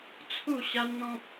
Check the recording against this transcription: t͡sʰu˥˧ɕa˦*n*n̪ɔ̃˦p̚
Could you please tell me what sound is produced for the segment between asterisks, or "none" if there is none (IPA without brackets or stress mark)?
n